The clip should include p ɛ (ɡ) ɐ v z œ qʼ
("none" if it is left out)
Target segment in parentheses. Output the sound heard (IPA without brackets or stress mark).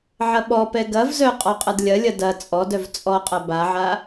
ɡ